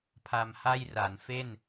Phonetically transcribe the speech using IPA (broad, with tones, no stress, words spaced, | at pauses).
pʰa˧mha˥˩jra˩˦n fe˥˩n